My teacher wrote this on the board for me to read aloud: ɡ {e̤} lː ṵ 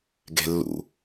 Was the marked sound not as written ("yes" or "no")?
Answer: no